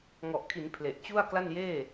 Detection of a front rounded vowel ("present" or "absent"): absent